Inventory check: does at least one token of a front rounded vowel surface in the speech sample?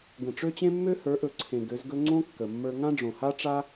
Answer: yes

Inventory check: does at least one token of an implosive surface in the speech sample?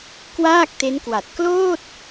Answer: no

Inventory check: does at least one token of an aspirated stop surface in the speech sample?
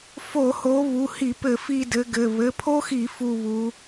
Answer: yes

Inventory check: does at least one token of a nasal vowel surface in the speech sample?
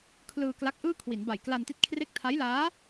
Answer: no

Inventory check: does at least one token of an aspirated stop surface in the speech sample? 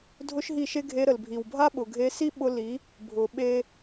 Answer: no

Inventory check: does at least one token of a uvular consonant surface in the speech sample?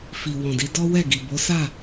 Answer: no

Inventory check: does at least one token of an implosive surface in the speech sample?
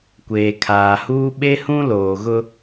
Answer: yes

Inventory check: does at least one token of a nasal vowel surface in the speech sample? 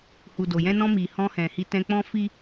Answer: yes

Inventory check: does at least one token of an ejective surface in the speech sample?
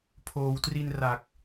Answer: no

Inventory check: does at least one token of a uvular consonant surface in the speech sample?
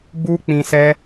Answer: no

